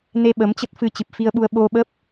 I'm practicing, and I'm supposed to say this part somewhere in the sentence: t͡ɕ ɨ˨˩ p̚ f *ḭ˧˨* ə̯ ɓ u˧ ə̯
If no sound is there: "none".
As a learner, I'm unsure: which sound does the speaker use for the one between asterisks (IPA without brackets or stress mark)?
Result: i˧